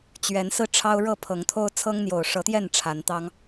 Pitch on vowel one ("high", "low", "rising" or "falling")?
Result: rising